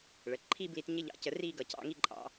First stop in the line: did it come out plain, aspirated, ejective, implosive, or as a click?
click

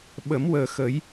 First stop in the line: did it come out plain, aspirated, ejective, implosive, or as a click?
implosive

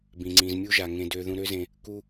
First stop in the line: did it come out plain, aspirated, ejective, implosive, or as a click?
plain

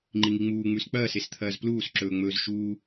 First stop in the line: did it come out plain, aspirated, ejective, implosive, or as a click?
click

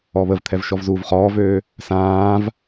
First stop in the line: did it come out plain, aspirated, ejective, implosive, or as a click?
aspirated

